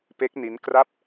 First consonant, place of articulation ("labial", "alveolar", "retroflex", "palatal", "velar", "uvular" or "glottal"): labial